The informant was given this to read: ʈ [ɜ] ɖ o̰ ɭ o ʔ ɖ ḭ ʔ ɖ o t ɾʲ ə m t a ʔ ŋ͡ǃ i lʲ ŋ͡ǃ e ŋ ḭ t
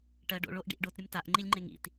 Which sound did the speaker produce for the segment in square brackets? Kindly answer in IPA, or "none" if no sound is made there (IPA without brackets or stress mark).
ɜ